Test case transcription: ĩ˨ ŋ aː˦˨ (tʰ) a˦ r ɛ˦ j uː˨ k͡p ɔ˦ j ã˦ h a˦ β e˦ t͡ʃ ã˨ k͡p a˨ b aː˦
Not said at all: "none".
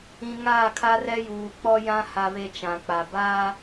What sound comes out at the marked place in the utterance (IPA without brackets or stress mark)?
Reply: kʰ